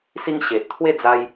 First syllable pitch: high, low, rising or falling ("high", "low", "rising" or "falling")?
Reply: high